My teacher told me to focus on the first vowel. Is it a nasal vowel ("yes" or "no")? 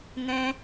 yes